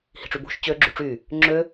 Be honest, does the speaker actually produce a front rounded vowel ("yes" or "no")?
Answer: yes